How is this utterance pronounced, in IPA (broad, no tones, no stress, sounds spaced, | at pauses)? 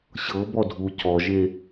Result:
ɕ ɤ b ɔ dʱ u c ɔ ʒ e